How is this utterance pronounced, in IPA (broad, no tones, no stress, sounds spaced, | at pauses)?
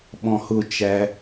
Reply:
ɓ ɔ̃ h ʊ t͡ʃ æ